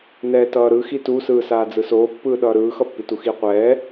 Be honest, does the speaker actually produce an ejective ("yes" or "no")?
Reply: no